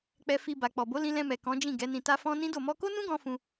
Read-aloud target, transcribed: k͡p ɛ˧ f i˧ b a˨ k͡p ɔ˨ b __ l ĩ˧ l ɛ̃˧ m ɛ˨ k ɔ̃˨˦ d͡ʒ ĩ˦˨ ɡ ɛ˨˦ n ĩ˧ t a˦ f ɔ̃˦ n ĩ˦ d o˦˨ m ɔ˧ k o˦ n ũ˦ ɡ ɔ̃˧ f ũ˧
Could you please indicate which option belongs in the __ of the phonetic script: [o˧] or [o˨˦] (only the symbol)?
o˨˦